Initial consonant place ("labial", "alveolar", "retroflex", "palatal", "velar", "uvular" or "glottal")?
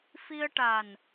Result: labial